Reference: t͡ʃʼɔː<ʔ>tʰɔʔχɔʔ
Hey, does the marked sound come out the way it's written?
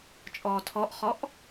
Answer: no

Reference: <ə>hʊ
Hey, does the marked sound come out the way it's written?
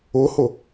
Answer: no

